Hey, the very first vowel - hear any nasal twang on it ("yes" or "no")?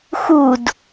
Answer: no